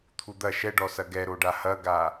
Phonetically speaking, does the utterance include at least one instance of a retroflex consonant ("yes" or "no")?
yes